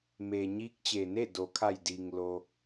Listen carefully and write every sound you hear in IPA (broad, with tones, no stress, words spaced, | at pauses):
me˩ ɲiː˧˥k̚t͡ɕeː˩ ne˥˨ do˩kʰa˧˩jdiː˩ŋ lo˧